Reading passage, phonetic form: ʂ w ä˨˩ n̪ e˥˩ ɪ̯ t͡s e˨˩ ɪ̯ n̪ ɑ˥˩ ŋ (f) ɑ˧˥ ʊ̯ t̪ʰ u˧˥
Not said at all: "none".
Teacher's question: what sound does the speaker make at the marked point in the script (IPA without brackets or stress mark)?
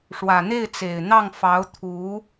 f